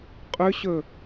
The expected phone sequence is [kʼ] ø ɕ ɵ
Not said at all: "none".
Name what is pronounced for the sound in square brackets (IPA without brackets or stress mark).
qʼ